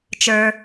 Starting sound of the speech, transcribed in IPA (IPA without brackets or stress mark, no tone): t͡ʃ